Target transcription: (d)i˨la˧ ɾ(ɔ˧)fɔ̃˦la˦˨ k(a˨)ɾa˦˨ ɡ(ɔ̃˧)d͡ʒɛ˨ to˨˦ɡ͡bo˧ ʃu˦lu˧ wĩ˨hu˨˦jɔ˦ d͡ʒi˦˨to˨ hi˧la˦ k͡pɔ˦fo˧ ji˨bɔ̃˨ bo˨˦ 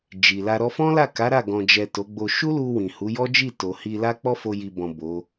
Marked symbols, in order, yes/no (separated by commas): no, yes, no, no